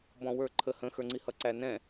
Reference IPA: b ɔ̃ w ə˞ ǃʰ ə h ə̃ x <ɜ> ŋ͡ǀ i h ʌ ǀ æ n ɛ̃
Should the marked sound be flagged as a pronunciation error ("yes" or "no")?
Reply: yes